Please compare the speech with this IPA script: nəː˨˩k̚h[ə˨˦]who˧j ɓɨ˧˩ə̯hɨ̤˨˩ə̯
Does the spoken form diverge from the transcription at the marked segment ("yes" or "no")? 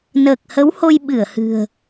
no